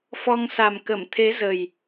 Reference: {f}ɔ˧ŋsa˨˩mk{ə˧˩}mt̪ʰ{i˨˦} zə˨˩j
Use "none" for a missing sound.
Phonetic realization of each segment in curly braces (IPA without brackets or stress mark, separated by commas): f, ə˧˩, e˨˦